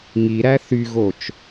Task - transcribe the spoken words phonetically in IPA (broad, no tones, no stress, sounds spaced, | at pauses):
ŋ i ɾ æ θ y ɣ o t͡ʃ